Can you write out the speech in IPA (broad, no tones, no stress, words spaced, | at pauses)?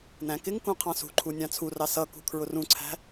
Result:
næ̃kɪŋkũ qʰɑ̃sṳǃʰu nʲɑ̃t͡sʰurɑ sʌkṳ kʰɹʊrũǀʰæ̤